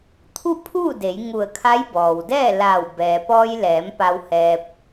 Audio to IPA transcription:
t̪ʰ u˥˨ pʰ uː˥˨ d e˩˧ j ŋ u˧˩ ə̯ kʰ a˧˥ j b ɔː˩ w d ɛː˥˨ l aː˧˩ w b ɛː˩ p ɔː˧ j l ɛː˩˧ m p a˧ w h ɛː˧ p̚

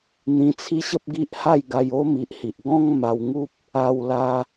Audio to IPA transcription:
n̪ ĩ˧ t͡sʰ i˦ ɕ ə˦ p̚ ɡ i˦ ʔ h a˥˧ j ɡ a˧ j o˦ m i˨ ʔ h i˨ ʔ ɡ ɔ̃˧ ŋ m a˧ w ŋ u˦ p̚ | a˧ w l a˧

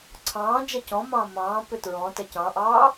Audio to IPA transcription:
ǀʰ ɑ̃ː d͡ʒ ɛ c ɔ̃ m ɑ̃ː m ɑ̃ː p ʏ t ɹ ɔ̃ t ɛ c ɑ̃ ʔ ɑː

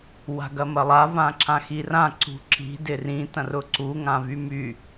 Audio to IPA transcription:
w a̤ ɡ ɐ m ɐ lˠ a v ã ǁ ã x i r ã ǀ ṳ ǁ i̤ d ɪ r ĩ t ɐ̃ r ʊ ǀ u ŋ ã v y m y

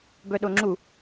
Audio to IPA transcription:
b œ ɗ o ŋ͡ǁ u

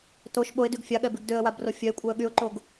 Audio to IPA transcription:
t o ʃ ɓ o ɪ̯ d y ɡ fʲ a ɠ ɛ b y ɡ d ø ə̯ w a b r o fʲ œ ɪ̯ kʷʼ ɛ ə̯ ɠ y ʊ̯ ǃ o ɡ

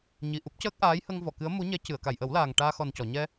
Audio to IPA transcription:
ɲ i˨˩ ʔ u˦˥ p̚ c əː˦˥ k̚ ʔ aː˧˥ j h ə˧ ŋ v ɔ˨˩˨ k ɨ˧˥ ə̯ m u˧˥ ɲ ɛ˧˥ c ɨ˨˩˨ ə̯ k a˨˩˨ j ʔ ə˨˩˦ w l aː˨˩ ŋ ʈ aː˧ x ɔ˨˩ n c ɔ˨˩˨ ɲ ɛ˧

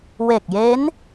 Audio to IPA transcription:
w e˨˩ k̚ j e˦˥ n

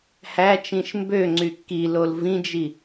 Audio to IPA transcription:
h æ t͡ʃ ĩ ʃ m b ø ŋ͡ǀ y kː i l o l v ĩ d͡ʒ i

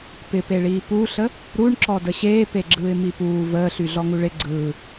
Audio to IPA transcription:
p ɪ p e ɭ iː p u ɬ ə | ɾ u ɳ ǁ ɔ d ə ɕ eː p e ɡ͡ǁ ɯː ɪ̯ m i p uː v əː ɬ y ɮ ɔ ŋ u ɭ ɪ ɡ͡ǀ ɯː

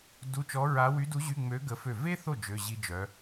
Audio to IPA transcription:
d u˧˥˧ t͡ʃ ɔ˧˥ ɹ a˧˥ w y˧˥ d u˧˥ ʑ y˧˥˧ ŋ͡m ø˧˥ ɡ ə˧˥ f ø˥˩ v e˥ θ o˥˩ d͡ʒ ø˧˥˧ ʑ i˥ d͡ʒ œ˧˥

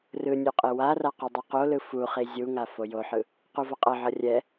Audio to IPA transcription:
r ɯ nʲ o qʼ e w a r a q u dˤ o q o l ɯ f u χ i zʲ u ŋ a f o j o ħ ɯ | q u v ʌ qʼ ʌ ʕ ʌ rʲ ɛ

